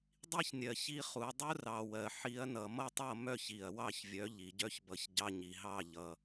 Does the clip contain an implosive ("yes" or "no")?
no